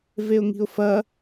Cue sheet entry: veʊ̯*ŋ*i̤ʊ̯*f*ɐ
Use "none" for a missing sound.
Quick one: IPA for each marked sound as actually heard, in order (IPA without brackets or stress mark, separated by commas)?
ŋ, f